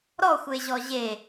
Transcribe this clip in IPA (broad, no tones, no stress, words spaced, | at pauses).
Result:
ɾɔxʷeʑɔ ʑe